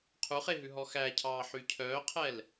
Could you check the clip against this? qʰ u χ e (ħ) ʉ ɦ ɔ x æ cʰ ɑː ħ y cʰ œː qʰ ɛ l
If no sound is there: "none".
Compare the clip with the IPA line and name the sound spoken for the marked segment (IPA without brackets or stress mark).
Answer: ɦ